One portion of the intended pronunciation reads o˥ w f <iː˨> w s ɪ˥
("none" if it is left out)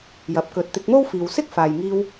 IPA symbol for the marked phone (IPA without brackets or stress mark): iː˨